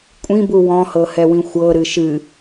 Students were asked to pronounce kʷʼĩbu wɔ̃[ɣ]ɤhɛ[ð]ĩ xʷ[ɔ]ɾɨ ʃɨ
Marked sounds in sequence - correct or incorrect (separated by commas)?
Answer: incorrect, incorrect, incorrect